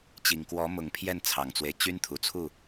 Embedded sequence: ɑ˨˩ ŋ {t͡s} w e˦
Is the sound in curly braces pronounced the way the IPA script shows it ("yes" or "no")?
yes